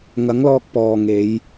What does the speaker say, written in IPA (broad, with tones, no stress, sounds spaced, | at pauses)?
ŋ ɐ˨˥ ŋ l ɔː˧ k̚ p ɔː˨ ŋ e˨˧ j